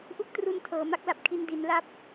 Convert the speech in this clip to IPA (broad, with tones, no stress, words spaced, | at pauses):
ʔu˦˥k̚tru˧n tʰɤː˩˦ma˦˥k̚la˨˩p̚kʰi˧n di˩˦nla˦˥p̚